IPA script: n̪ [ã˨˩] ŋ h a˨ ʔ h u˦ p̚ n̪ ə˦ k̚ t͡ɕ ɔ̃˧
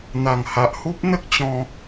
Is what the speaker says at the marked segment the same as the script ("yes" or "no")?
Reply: no